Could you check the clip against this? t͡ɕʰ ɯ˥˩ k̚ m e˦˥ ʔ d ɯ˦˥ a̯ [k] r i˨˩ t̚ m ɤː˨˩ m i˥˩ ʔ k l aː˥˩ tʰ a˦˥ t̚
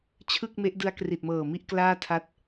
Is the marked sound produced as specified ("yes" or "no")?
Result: yes